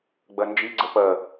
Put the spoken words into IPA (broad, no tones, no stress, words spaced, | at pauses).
ɡ͡bɜnd͡ʒiɡ͡ǀə pɜ